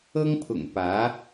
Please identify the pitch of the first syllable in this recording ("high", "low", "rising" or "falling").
high